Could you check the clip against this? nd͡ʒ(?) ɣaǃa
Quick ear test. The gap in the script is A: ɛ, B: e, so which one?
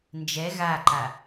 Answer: A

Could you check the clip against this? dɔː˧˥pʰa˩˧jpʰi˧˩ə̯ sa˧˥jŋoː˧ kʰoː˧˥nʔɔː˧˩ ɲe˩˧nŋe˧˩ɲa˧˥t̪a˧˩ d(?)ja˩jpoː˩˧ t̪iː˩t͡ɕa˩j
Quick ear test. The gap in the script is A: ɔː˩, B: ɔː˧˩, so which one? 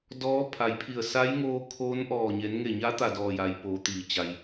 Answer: B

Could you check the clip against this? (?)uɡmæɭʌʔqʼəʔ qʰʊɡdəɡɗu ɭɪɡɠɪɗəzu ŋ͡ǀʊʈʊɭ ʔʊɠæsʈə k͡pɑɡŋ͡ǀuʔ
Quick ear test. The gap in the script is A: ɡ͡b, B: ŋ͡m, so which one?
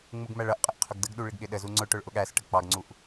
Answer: B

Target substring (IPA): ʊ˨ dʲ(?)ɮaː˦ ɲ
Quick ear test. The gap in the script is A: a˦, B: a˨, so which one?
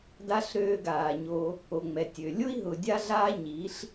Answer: A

